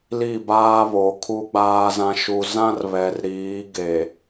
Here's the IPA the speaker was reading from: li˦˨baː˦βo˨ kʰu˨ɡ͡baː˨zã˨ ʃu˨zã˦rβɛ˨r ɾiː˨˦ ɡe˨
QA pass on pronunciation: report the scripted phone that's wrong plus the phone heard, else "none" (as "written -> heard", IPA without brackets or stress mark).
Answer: none